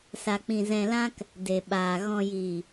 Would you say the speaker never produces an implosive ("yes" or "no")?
no